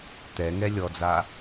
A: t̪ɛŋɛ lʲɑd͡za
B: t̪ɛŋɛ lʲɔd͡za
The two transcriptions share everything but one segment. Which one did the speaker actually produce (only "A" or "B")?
B